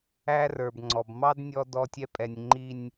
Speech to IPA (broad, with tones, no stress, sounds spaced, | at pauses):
æ˦ r ə˞˨ b ŋ͡ǀ ɔ˨ b m ɑ˦ d nʲ ɔ˦ d ɔ˦ tʲ ɛ˦ pʼ ɛ˨ nʲ ŋ͡ǃ i˨ nʲ